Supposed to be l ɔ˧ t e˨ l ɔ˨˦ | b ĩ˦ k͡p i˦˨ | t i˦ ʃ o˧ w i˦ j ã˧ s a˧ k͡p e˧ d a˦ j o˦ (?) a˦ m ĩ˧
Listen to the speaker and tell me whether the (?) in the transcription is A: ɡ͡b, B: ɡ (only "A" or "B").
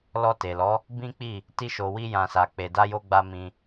A